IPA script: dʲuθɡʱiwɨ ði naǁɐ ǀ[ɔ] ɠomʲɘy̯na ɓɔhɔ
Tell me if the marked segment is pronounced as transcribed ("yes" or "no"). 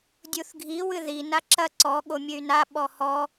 yes